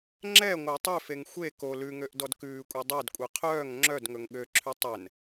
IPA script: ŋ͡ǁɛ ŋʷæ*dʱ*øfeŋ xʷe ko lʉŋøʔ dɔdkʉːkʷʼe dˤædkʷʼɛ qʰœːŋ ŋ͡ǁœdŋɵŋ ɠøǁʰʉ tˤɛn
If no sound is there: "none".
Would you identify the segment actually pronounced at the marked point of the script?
tˤ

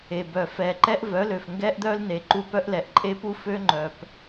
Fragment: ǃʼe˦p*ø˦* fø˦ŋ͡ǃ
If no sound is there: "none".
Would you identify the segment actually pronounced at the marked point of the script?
u˦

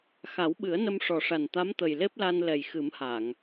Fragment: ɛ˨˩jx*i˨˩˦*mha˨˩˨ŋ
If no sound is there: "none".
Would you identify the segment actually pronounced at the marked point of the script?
ɨ˨˩˦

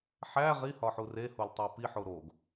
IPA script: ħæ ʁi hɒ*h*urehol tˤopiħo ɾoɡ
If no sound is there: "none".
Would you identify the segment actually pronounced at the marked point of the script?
ħ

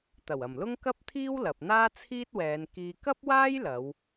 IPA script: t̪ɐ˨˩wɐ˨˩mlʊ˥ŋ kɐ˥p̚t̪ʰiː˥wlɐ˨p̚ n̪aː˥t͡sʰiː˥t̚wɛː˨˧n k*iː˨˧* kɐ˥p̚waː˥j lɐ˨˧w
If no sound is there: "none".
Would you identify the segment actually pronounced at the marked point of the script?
iː˧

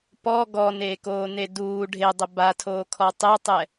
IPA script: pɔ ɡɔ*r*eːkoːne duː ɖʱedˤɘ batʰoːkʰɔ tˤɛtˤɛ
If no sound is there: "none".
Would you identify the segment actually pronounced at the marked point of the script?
n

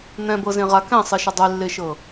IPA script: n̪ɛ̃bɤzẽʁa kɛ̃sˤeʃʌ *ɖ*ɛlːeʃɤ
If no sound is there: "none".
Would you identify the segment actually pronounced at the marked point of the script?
dˤ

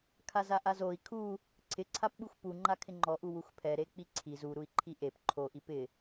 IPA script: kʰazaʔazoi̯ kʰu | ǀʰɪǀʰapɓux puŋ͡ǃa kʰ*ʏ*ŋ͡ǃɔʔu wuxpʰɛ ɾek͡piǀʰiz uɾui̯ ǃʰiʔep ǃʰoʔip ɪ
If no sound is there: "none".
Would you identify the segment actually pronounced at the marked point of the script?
ɪ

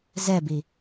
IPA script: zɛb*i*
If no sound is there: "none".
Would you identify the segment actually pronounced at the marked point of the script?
i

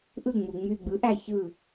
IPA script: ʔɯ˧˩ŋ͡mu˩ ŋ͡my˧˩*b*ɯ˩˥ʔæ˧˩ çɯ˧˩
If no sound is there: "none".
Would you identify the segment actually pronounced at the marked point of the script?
ɡ͡b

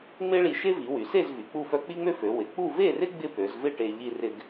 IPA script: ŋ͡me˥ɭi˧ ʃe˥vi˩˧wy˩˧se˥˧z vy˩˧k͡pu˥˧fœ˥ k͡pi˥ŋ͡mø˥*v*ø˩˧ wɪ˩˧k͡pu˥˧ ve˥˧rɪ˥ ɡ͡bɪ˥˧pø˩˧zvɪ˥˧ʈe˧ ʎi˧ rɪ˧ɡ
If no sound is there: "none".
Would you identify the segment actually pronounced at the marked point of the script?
f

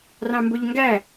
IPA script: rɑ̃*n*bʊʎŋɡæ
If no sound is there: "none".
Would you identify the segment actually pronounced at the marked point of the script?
m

